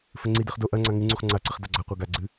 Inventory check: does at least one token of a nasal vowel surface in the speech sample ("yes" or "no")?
no